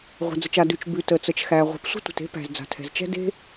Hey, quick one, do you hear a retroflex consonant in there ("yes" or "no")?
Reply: no